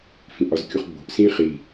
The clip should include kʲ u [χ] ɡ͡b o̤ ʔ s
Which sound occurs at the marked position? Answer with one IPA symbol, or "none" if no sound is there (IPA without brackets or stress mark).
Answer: χ